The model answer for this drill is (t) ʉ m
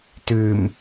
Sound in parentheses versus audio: correct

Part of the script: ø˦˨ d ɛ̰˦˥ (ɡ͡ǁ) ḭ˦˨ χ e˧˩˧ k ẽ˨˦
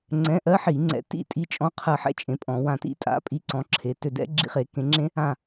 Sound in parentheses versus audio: correct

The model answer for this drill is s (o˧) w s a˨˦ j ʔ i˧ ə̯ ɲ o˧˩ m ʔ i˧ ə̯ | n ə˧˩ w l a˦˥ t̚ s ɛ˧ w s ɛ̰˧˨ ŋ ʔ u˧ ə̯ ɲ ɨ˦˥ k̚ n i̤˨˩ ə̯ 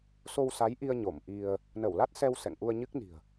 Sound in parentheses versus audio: correct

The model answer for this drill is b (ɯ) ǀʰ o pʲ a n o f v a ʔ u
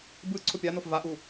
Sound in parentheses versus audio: correct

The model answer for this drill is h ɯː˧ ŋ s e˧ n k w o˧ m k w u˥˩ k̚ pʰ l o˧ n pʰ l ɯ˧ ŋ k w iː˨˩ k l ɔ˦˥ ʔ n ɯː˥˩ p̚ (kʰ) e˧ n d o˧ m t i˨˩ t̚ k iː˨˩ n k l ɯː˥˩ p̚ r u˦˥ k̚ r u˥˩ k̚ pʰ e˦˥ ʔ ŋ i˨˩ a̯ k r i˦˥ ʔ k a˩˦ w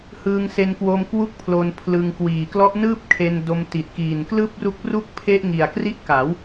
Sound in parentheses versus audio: correct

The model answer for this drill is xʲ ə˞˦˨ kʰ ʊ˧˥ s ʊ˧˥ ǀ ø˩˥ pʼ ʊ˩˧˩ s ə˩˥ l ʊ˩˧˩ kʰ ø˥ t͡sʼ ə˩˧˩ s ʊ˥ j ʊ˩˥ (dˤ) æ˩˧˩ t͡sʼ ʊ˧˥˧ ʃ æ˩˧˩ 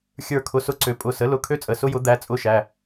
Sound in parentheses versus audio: incorrect: d̪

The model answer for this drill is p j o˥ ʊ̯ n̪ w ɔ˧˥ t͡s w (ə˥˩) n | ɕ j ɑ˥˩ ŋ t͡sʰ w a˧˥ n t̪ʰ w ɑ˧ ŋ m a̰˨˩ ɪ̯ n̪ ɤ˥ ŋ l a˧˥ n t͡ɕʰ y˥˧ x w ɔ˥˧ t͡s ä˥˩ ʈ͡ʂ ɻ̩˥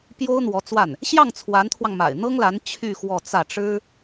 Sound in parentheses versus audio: incorrect: a˥˩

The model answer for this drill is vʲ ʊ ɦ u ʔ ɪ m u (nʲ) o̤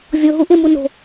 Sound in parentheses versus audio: incorrect: n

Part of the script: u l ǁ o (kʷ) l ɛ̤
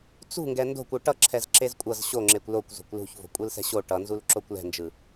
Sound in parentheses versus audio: correct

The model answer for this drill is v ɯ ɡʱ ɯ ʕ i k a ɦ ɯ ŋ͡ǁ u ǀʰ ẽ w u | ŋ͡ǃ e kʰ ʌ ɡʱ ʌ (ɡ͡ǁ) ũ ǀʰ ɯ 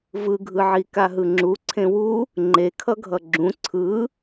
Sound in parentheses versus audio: correct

